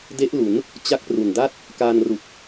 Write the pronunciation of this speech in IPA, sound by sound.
d e˦˥ ʔ l u˩˦ n | t͡ɕ a˦˥ k̚ p r u˨˩ n d a˥˩ t̚ | k aː˧ n r u˨˩ k̚

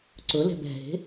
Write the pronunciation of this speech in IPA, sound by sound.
ǀ ʊ l ɛ̤ b ɛ̤ ɦ e̤

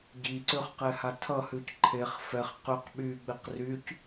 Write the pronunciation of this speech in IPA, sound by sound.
ɟ i ǀ ʏ χ q ɛ h a tʰ ʌ h ʉ c ǃʰ e χ f ɛ χ q ʏ q ɓ y ɡ͡b e q r y c

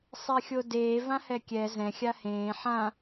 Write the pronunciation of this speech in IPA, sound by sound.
sˤ e xʲ o d eː v ã h ɛ kʲ ɛ z ɛ̃ xʲ a h ẽː ħ ã

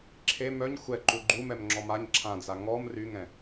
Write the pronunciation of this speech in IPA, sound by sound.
ǁʰ e m œ ɲ xʷ ɛ ǃ u ɡ͡ǃ u m ɛ m ŋ͡ǁ ɔ m a ɲ ǁʰ ã d͡z a ŋ ɔ m r y ŋ ɛ̃

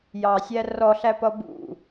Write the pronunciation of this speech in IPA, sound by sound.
j ɑ sʲ æ r ɔ ɬ æ p ʌ b ṵ

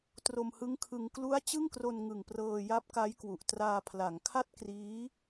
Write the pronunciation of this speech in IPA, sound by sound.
t r o˧ m h ɯ˦˥ ŋ kʰ ɯ˧ ŋ k l u˦˥ a̯ t͡ɕ ɯ˥˩ ŋ k r o˧ n ŋ ɯ˨˩ ŋ p r ɤː˧ j a˦˥ p̚ k a˦˥ j k w u˨˩ ʔ t r aː˧ pʰ l a˩˦ ŋ kʰ a˥˩ t̚ k r iː˦˥

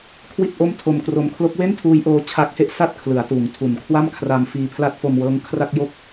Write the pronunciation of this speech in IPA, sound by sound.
kʰ w i˥˩ t̚ ʔ o˥˩ m tʰ o˧ m k r o˧ m kʰ l o˦˥ k̚ w e˥˩ n tʰ uː˦˥ j ʔ oː˦˥ t͡ɕʰ a˦˥ k̚ h e˥˩ ʔ s a˥˩ t̚ kʰ l ɯ˩˦ a̯ t uː˩˦ ŋ tʰ u˨˩ n kʰ w a˥˩ m kʰ r a˧ m f iː˧ pʰ l a˦˥ t̚ f o˧ m w ɤː˦˥ ŋ kʰ r a˥˩ k̚ j o˦˥ k̚

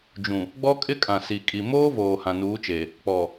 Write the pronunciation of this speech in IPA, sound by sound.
d͡ʒ ũ˨ | ɡ͡b ɔ˦ kʼ ɪ˦ kʼ ã˨ s i˨ kʼ i˨ m oː˦ v oː˨ h ã˨ n uː˨˦ t͡ʃ e˨ | k͡p ɔ˨

